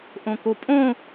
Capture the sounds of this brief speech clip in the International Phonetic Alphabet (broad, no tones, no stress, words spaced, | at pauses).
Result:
ʔõkopʼõ